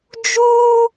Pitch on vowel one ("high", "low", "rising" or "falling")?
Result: high